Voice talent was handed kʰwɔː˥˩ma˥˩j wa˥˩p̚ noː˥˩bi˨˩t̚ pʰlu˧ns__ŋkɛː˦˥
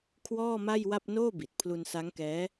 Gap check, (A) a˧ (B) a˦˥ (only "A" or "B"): B